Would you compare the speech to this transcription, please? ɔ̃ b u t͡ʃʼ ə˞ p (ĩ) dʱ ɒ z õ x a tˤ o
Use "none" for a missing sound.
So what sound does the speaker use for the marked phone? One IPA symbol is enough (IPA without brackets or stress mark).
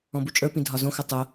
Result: ĩ